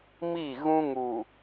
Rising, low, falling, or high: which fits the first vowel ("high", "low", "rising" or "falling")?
falling